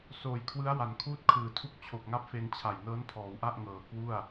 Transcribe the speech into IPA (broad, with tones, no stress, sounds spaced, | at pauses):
s oː˩˦ j kʰ w ɯ˦˥ a̯ w a˩˦ n kʰ uː˦˥ t̚ kʰ ɯː˩˦ tʰ u˦˥ k̚ t͡ɕʰ o˨˩ k̚ ŋ a˦˥ p̚ f e˧ n t͡ɕʰ a˨˩ j n ɤː˦˥ n pʰ ɔː˩˦ w ʔ a˥˩ ʔ ŋ ɤː˨˩ k w u˥˩ a̯